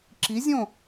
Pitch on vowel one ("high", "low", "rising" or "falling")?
rising